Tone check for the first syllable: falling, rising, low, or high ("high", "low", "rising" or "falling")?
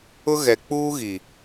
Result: high